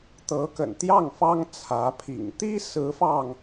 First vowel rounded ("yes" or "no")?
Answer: no